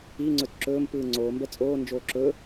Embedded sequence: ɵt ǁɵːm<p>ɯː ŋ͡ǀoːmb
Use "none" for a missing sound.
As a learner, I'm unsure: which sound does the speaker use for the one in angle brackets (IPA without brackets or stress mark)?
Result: p